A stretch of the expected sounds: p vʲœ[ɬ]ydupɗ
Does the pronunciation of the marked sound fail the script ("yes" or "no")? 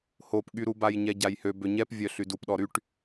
no